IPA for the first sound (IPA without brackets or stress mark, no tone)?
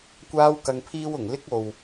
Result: kʷ